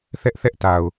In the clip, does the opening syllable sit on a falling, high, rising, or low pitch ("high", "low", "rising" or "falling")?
high